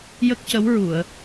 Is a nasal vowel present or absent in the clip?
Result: absent